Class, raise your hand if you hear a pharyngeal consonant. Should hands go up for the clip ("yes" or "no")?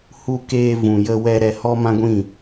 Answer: no